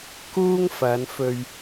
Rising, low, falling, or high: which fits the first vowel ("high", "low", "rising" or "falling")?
high